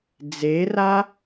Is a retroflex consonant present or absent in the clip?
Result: absent